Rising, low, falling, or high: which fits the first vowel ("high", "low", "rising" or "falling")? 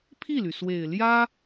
falling